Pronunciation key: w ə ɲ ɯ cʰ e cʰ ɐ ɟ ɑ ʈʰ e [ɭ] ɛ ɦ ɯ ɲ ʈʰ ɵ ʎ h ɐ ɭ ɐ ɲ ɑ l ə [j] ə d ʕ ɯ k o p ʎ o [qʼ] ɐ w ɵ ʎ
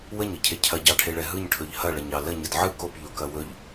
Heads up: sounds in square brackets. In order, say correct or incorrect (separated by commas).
correct, incorrect, incorrect